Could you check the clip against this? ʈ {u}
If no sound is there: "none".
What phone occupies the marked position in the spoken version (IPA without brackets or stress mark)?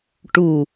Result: u